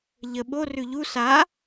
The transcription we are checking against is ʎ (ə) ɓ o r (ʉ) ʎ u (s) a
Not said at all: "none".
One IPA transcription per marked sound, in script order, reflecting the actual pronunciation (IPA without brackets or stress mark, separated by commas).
ə, ʉ, s